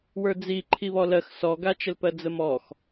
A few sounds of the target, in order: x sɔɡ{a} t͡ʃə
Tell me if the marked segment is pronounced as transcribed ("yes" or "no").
yes